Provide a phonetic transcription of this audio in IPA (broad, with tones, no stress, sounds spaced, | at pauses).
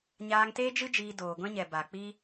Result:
ɲ aː˧ ŋ t eː˦ d͡ʒ ɨ˦ d͡ʒ iː˧ d oː˨ ɡʷ ɛ̃˦ ɲ ɛ˨ b a˨ k͡p i˦